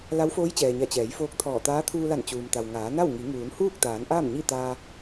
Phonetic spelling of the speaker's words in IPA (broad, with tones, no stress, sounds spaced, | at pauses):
l a˧˥ w f oː˧˥ j t͡ɕ ɛː˩ ɲ a˧˩ t͡ɕ ɛː˩˧ j f oː˧ k̚ t̪ʰ ɔː˧˩ t̪ aː˧˥ t̪ʰ uː˧ l a˧˩ n t͡ɕ uː˩ m t̪ a˩ w ŋ aː˩˧ n a˥˨ w ŋ i˩˧ ŋ uː˩˧ n h uː˥˨ k̚ t̪ aː˩˧ n ʔ aː˥˨ m ɲ i˥˨ t̪ aː˧